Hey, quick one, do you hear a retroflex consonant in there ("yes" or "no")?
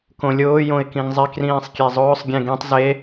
no